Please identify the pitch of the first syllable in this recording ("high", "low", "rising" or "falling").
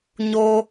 high